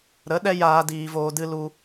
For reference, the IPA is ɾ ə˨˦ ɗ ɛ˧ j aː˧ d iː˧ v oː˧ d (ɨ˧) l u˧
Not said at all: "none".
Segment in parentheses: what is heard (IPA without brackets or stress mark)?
ɨ˧